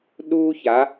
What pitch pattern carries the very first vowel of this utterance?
high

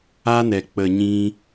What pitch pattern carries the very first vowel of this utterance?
high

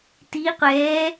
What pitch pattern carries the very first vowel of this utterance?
rising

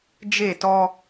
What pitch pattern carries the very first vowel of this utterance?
falling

